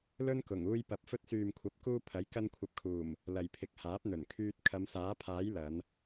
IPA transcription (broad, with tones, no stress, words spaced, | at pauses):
lɵ˥nkʊ˨˩ŋ uː˧jpɐ˨˥p̚ fɵ˧t̚syː˨mkʷʰɐ˨˥p̚kuː˧ pʰɐ˨˥j kɐ˧nkʷʰɐ˨p̚kʰuː˨˩m | lɐ˨jpʰɪ˨k̚haː˨˥p̚ n̪ɵ˨˩nkʰyː˧t̚ kʰɐ˨˧msaː˨˥pʰaː˨˥j lɐ˨˧n